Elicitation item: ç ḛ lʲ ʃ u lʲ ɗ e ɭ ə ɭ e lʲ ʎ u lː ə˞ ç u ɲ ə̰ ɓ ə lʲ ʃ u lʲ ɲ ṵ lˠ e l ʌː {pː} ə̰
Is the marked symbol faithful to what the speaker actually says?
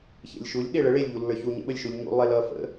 no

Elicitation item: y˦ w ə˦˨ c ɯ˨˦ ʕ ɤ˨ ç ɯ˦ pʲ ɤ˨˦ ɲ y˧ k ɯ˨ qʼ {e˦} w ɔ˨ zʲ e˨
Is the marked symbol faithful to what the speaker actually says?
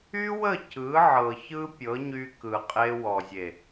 no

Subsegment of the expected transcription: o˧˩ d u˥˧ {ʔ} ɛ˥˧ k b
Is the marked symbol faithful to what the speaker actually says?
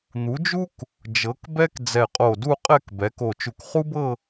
no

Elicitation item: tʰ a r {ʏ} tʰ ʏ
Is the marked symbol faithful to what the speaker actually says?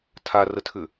no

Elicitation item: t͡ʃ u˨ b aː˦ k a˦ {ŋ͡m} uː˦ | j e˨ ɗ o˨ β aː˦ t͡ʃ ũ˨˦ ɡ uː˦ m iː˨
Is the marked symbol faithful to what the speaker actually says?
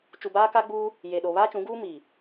no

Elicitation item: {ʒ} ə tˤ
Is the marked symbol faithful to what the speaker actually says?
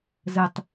no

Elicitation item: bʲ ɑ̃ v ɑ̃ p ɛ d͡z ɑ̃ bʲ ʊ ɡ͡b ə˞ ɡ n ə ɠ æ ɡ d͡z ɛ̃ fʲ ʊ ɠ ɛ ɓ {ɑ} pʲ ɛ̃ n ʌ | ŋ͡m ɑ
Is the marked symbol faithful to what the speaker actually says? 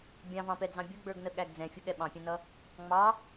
no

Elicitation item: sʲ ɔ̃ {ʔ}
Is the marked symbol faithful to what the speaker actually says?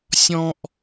yes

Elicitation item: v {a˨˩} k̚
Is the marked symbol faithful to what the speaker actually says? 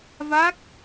no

